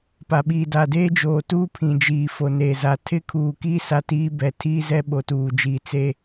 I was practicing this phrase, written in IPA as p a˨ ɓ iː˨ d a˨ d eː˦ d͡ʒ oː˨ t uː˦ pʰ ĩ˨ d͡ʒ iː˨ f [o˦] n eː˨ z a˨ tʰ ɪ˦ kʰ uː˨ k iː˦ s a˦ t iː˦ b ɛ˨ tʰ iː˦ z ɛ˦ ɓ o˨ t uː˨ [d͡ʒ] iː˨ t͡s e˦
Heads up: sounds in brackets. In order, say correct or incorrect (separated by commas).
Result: incorrect, correct